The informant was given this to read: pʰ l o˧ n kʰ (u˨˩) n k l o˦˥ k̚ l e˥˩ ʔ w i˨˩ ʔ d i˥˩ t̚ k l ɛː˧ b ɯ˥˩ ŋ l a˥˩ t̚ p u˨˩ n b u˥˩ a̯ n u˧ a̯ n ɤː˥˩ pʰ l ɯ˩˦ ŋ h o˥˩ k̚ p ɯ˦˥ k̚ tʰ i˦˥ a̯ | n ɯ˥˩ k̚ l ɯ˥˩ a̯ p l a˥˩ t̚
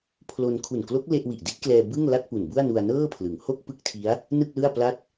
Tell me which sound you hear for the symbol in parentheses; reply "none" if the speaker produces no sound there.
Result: u˨˩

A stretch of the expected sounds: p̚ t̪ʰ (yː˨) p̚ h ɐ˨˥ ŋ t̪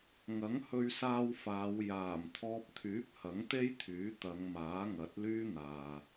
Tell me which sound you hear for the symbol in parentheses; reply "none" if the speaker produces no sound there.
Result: yː˨˥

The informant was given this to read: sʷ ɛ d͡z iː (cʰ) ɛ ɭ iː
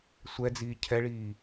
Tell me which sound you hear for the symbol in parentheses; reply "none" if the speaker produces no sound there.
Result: cʰ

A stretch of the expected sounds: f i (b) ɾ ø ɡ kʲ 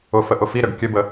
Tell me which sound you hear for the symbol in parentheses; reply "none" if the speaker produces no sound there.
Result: none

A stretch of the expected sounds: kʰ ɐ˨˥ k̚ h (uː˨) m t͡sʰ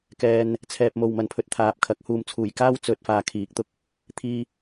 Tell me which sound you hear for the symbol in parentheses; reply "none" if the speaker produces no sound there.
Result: uː˧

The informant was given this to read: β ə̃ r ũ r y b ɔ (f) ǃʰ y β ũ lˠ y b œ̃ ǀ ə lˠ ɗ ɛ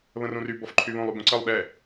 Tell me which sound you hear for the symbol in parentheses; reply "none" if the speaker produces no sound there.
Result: f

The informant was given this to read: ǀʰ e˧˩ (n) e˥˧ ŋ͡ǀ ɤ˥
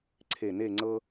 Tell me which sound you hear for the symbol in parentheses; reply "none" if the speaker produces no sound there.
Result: n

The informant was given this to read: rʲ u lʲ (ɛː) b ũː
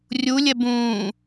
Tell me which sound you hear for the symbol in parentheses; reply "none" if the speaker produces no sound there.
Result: ɛ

